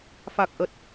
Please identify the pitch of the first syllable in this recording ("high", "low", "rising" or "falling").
low